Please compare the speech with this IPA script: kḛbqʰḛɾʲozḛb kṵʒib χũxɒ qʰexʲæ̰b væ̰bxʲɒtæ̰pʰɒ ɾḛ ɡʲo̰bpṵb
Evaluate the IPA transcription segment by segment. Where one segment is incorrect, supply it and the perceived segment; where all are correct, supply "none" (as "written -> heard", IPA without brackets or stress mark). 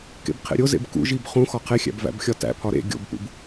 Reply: none